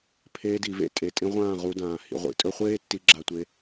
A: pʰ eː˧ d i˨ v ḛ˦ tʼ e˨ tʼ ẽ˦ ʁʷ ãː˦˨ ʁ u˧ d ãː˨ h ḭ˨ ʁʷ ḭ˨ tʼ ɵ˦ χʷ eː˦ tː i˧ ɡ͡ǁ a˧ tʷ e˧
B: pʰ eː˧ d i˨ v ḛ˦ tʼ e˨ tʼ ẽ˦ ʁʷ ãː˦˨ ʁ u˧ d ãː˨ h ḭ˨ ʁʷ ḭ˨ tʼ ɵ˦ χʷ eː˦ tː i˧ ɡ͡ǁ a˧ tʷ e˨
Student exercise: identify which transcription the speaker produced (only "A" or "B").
A